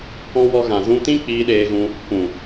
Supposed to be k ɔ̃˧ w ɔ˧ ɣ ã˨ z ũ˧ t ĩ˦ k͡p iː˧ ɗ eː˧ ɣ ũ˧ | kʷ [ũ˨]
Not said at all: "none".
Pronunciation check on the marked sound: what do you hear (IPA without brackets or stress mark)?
ũ˨